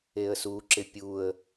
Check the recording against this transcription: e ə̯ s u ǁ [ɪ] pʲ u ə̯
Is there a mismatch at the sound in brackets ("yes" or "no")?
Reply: no